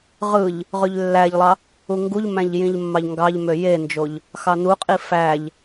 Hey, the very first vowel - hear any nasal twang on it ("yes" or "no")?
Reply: no